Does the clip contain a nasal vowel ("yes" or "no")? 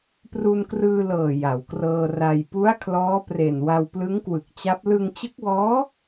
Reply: no